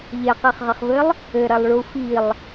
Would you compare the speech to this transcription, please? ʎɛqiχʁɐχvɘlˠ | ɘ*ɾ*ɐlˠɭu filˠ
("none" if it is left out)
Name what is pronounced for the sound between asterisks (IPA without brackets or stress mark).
ɾ